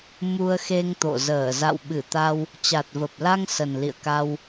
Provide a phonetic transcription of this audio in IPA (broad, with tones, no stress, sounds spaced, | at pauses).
m u˧ ə̯ x e˧ ŋ t̪ o̰˧˨ z əː˧˩ z a̰˧˨ w ɓ ɨ˧˩ t̪ a˧ w | t͡ɕ a˨˩ t̚ v ə˨˩ p̚ l a˧ ŋ s ə˨˩ n l ḭ˧˨ ə̯ k a˧ w